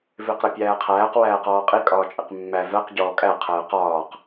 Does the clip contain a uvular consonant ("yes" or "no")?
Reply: yes